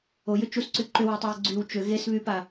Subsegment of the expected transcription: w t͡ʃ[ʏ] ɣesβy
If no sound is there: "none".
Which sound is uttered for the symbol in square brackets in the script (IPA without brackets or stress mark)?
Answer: ʏ